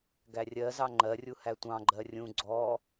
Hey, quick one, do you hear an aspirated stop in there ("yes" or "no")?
no